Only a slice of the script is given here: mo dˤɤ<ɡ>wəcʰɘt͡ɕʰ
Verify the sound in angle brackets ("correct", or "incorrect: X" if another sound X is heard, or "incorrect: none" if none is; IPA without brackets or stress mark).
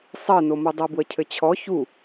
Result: incorrect: b